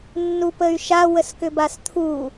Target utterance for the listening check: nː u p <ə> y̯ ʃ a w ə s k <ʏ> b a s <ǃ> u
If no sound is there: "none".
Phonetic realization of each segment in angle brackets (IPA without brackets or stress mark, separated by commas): ə, ʏ, t̪ʰ